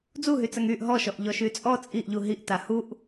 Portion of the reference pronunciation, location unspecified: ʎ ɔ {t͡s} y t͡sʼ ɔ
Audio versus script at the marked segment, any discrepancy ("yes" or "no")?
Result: yes